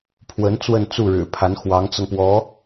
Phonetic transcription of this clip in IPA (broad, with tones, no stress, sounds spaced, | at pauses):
pʰ w ə˧˥ n t͡s w ə˥˧ n t͡s u˥˩ ɻ ɻ̩˨˩ pʰ a˧˥ n x w ɑ˧˥ ŋ t͡s ɤ˧ ŋ p w ɔ˧˥